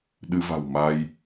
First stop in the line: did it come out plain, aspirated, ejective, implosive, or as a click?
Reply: implosive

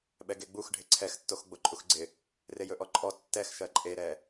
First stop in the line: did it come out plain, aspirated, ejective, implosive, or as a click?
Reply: implosive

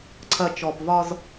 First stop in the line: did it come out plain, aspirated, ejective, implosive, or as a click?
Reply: click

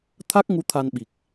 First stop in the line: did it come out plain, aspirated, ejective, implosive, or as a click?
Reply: aspirated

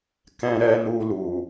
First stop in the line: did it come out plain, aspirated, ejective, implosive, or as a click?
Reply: plain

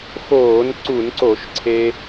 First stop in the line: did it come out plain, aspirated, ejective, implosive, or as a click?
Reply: click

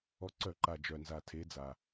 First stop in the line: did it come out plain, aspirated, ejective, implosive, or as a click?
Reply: click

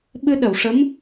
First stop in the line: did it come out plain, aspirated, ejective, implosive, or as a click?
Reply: implosive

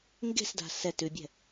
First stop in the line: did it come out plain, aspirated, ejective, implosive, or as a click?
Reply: plain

